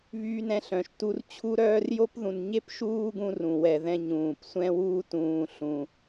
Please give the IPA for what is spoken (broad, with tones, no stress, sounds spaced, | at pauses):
β yː˦ n ɛ̃˦ ɬ œ̃˩ ʃ t u˦ r t͡ɕʰ u˥ ɾ œː˦ r j o˥ p ð ũ˨ n ɲ e˥ p ʃ uː˦ ɡ ũ˥ r ũ˩ w ɛ˨ ð ɛ̃˦ ɲ ũː˩ p sʷ ɛ̃˥ w uː˥ t ũː˨ ɬ ũ˩